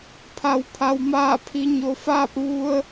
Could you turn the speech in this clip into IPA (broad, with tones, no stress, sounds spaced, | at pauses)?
pʰ a˩ w pʰ a˩ w m aː˧˩ pʰ i˩˧ ɲ o˩ f aː˥˨ p̚ ʋ u˧ ə̯